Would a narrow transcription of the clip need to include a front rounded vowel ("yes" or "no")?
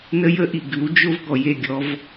no